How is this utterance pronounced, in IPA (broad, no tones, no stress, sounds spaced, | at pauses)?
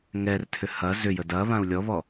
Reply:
ŋ ɛ r tʰ ʏ h ɐ z ʏ j ə d ɐ β ã u̯ lʲ ɔ β ɔ